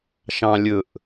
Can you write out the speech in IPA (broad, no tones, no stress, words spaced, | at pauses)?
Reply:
ʃɑ̃lʲɵʔ